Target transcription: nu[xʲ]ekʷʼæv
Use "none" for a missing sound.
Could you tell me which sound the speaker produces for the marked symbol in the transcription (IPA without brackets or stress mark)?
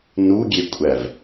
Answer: ɡʲ